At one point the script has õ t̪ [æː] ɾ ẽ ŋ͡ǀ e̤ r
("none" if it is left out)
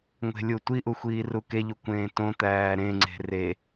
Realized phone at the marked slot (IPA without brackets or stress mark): æː